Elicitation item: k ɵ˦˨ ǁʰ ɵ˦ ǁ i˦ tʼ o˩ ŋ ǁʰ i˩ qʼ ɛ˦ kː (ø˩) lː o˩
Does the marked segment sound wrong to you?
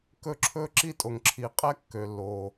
no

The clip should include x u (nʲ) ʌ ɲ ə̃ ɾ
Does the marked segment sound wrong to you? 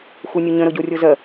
no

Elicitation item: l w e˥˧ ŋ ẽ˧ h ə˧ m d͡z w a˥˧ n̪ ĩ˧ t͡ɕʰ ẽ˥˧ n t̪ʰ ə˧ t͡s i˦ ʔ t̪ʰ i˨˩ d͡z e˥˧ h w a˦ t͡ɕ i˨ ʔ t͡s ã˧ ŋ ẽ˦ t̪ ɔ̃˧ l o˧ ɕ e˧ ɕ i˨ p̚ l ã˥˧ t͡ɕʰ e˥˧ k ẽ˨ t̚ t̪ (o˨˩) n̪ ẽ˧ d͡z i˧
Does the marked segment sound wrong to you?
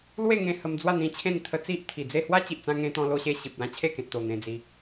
no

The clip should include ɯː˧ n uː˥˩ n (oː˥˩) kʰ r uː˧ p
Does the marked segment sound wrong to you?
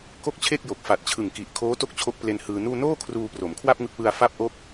no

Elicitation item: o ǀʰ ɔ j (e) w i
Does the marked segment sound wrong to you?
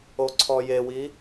no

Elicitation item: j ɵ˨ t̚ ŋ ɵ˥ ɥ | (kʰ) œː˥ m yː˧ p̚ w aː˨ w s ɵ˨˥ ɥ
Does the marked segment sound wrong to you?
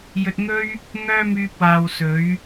yes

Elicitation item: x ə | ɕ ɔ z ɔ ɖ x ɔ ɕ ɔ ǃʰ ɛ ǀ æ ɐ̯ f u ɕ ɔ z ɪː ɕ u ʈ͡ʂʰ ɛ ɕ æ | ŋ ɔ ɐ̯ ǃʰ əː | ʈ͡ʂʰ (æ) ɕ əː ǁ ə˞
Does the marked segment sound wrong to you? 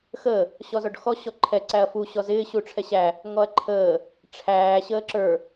yes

